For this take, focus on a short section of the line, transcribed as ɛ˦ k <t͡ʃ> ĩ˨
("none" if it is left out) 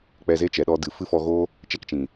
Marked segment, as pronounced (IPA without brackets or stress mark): t͡ʃ